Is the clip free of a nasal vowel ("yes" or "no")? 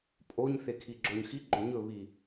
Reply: yes